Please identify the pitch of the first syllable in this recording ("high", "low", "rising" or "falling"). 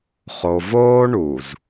low